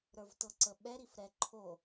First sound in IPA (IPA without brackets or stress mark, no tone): ɾ